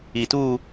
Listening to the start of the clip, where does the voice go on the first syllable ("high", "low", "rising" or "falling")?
low